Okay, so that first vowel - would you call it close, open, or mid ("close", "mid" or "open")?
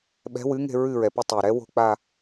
mid